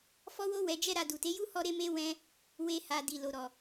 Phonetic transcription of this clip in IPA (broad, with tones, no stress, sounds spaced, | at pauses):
f ɔ˦ w o˦ w ɛ˧ d͡ʒ ɛ˦ ɾ a˧ d u˨ t e˨˦ j u˦ h ɔ˧ ɾ e˧ m e˧ w ɛ̃˧ | w e˧ h a˨ d i˨ l o˨ ɾ ɔ˨